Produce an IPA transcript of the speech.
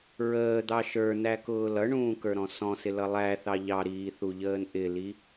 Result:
ɹ əː d̪ ɑ ʃ ə˞ n æ k ʊː l ʌ ɳ ũː k ə˞ ɾ ɔ̃ s ɔ̃ s ɪ l ʌ lˠ æ θ ɑ ʎ ɑ ɾ iː θ u ʎ əː n ʔ ɪ l i

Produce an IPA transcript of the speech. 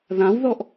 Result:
ð ã w ð ɔ ʔ

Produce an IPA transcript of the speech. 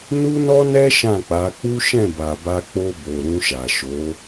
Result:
n u˦ n ɔ˦ n ɛ˦ ʃ ã˦˨ k͡p a˨˦ k͡p u˦ ʃ ɛ̃˦˨ b a˨ b a˧ k͡p o˧ b o˨ ɾ ũ˧ ʃ a˨ ʃ o˨˦

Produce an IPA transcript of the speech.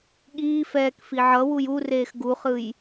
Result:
ɠ iː f ɛː k f i ʕ ʌ w u j u r eː x ɡ u χ ɯ j

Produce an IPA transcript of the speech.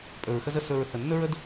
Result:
pʼ ɵ˨ ɹ x ə˦ z ə˧ s ɵ˨ ɹ θ ə˨ nː ɵ˦ ɹ ə˦ d

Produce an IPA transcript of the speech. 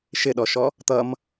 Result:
ʃ ɪ ɗ ɔ ʃ ɔ | t̪ ʌ m

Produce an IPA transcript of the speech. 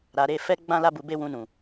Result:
ɾ a˨ ɾ e˧ f ɛ˦ ɡ͡b ã˦ l a˦ b u˧ b e˦ w ũ˧ n ũ˨

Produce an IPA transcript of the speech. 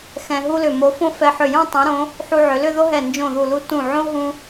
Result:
x ɛ̃˧ ɦ u˥ l ʏ˧˩ m o˧ f õ˥˧ f ɛ˧ ħ ʏ˧˩ j õ˥˧ tˤ ũ˩˧ ɾ õ˩˧ | ħ u˧ ʕ ʏ˩˧ l ʏ˥˧ ð o˥ ɦ ɛ˧˩ n d͡ʒ õ˧˩ ð u˧˩ l u˧ t ũ˧˩ ʕ õ˥ ɦ ũ˧

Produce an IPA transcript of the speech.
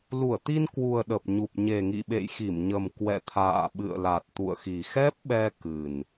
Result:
l u˧˩ ə̯ t̪ i˧ n k w u˨˩ ə̯ ɗ ə˨˩ p̚ ɲ u˨˩ p̚ ɲ e˨˩ ŋ ḭ˧˨ ɓ ḛ˧˨ j x i˧˩ m ɲ ə˨˩ m k w ɛ̰˧˨ t̪ʰ a̰ː˧˨ ɓ ɨ̰˧˨ ə̯ l a˨˩ t̚ t̪ ṵ˧˨ ə̯ x i˨˩ x ɛ˦˥ p̚ ɓ ɛ˧ k ɨ˨˩ n

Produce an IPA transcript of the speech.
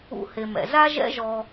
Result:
ṵ˧ h e˨ m ɛ̰˨ z a˦ ʒ ɛ̰˦ ʒ ɔ˧

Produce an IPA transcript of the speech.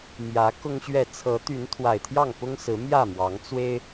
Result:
m j ä˨˦ k ʊ˦ ŋ ɕ ɥ ɛ˥˨ t͡sʰ ɤ˨˦ t̪ y˨˦ n t̪ʰ w a˨˩ ɪ̯ t̪ʰ j ɑ˥˨ ŋ p ʊ˦ ŋ s ɹ̩˨˦ m j ä˥˨ m w ɑ˨˦ ŋ t͡s w e˦ ɪ̯

